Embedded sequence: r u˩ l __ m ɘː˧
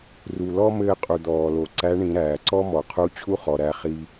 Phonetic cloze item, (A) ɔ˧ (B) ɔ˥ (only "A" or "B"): B